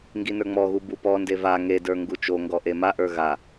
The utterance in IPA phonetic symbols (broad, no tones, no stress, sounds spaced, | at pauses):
ŋ ɡ i n ə˞ ŋ͡m ɔ ɣ u b u p ɔ n d e v a ŋ e d ə˞ ŋ ɡ u t͡ʃ o ŋ ɡ ɔ ʔ e m a ʔ ə˞ ɣ a